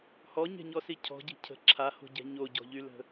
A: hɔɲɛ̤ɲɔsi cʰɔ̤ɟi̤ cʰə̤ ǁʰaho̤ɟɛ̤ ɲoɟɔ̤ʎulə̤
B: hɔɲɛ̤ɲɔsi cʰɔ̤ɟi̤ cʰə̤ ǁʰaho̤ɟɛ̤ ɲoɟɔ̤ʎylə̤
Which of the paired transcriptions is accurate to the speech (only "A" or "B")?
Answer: B